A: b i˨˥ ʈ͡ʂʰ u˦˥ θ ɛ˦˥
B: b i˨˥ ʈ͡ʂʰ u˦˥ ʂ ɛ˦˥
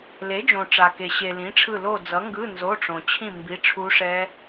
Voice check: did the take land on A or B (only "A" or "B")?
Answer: B